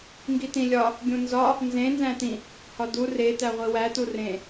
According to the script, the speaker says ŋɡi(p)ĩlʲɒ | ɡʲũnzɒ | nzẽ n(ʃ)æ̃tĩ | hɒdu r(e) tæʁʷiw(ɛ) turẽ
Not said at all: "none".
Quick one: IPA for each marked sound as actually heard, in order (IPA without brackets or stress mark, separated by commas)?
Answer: t, z, e, æ